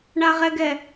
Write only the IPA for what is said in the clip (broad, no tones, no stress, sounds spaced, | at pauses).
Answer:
ɳ a ʁ ɛ ɡ ɛ